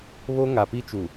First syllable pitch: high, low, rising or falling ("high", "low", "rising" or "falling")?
high